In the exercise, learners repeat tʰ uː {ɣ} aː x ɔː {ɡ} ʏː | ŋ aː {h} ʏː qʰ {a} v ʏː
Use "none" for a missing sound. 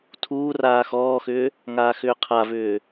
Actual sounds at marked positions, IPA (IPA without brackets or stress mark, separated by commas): r, x, x, a